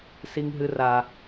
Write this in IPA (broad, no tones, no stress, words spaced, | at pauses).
siŋɦɨra